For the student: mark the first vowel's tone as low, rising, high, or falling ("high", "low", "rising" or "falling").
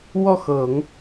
falling